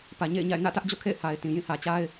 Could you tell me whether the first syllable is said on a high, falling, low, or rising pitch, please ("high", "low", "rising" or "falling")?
low